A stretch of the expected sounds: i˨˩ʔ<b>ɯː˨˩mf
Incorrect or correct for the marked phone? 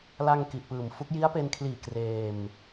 incorrect: p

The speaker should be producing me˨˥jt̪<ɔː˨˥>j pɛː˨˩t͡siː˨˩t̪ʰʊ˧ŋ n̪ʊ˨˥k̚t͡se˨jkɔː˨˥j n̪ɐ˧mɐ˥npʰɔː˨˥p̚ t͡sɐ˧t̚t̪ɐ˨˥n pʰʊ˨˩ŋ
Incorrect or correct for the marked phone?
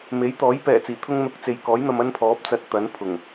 correct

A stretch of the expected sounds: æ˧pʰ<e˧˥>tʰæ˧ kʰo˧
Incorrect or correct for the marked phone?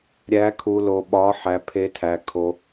correct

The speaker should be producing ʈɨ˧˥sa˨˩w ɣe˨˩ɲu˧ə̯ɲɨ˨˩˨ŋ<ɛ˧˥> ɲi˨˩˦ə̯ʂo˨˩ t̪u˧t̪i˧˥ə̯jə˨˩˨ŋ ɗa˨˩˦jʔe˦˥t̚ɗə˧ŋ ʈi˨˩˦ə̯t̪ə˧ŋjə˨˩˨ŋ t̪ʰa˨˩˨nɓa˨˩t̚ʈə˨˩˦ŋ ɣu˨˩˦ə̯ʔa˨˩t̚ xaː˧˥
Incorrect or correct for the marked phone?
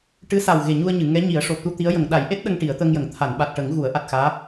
correct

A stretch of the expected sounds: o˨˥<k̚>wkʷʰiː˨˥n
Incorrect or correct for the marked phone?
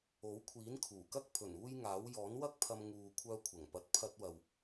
incorrect: none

